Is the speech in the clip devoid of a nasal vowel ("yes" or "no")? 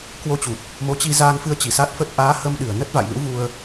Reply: yes